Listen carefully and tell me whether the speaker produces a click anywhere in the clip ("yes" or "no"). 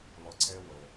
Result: yes